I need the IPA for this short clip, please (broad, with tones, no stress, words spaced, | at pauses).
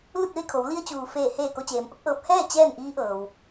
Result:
lu˥˨t̚ʋe˥˨kʰo˩˧w li˧ə̯t͡ɕuː˩ feː˧˩heː˧˩ ko˧t͡ɕeː˩˧mʔo˧˥k̚ʔɤː˧˥p̚ hɛː˥˨ t͡ɕɛː˥˨nʔiː˧˥ʔɤː˩w